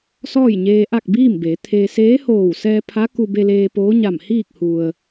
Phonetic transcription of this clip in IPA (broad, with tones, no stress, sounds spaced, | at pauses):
s ɔː˥˨ j ɲ eː˧ ʔ a˥˨ k̚ b iː˥˨ m b eː˩˧ t̪ʰ e˧ s eː˧˥ h oː˧˩ w s ɛː˧ pʰ a˧˥ k u˧ b e˧ l eː˧ p oː˧˥ ɲ a˧˩ m h iː˥˨ k̚ h u˩ ə̯